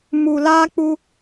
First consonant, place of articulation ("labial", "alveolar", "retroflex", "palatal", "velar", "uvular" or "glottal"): labial